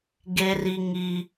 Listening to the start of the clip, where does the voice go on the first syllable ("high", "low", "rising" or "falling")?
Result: high